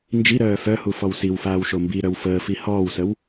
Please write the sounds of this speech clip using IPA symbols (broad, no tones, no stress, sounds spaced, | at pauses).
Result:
n d͡ʒ i ɾ œː f œ h u f ɔ w s i w f aː w ʃ o m b i ɾ œ w f əː f i h ɔː w s ə w